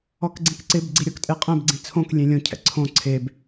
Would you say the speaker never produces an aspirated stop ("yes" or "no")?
no